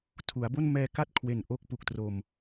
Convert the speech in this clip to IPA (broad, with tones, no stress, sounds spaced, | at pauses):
tʰ u˩˦ a̯ b o˥˩ n m ɛː˧ k a˥˩ t̚ kʰ w e˨˩ n ʔ o˥˩ k̚ p u˨˩ k̚ t r o˨˩ m